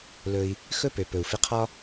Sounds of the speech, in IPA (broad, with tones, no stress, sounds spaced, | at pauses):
l ɵ˧ i̯ | x ɵ˦ p ø˨ p ɵ˨ u̯ f ɪ˧ qʰ ɒ˦